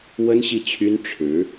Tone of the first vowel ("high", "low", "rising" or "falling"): high